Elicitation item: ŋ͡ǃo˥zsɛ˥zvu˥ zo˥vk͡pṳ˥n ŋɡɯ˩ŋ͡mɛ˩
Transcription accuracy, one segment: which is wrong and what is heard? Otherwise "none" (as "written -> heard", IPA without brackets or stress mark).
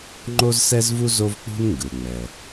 none